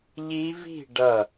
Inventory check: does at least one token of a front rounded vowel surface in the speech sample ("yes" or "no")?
no